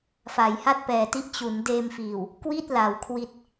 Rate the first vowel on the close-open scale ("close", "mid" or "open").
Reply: open